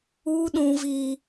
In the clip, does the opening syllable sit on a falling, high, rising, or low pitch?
high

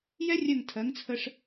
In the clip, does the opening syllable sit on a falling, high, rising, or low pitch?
high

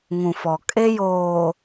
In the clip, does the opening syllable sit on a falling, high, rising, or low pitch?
low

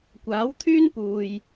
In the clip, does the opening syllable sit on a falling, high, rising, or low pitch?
rising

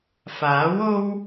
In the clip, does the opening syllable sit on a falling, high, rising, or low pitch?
rising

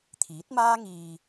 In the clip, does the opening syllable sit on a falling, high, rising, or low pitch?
rising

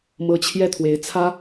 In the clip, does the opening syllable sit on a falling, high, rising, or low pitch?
rising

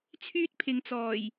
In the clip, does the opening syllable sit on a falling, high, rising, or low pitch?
high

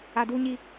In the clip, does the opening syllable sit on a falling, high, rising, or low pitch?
low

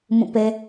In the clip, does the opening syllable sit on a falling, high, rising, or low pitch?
falling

